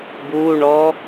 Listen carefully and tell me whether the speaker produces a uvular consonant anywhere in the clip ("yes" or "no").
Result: no